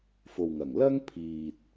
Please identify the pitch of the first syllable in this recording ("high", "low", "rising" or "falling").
low